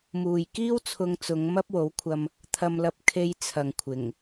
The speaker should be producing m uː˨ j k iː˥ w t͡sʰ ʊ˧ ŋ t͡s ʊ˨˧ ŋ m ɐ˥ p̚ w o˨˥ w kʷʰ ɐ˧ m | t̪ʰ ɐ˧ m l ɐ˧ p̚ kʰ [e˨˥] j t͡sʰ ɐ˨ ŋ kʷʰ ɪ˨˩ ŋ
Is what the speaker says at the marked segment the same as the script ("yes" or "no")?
no